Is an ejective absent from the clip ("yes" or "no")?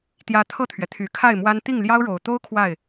yes